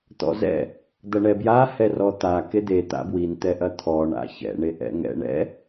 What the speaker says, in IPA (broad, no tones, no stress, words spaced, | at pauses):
t̪ɔ̰zɛ̰ | d̪ɐɳɛbja hɛrɔt̪a ked̪e t̪a̰bwin t̪ɛʔɐt̪ʰɔ ɳa̰çɛ̰ ɳeʔɛ̰ŋɛ̰ɳɛ̰